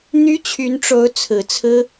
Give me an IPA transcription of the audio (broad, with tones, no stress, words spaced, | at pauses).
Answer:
n̪y˥t͡ɕʰy˧˥nʈ͡ʂo˧˥ʊ̯ t͡sʰɹ̩˨˩t͡sʰɹ̩˥